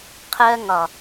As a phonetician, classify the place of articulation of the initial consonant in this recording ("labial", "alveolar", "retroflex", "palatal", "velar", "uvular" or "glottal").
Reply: uvular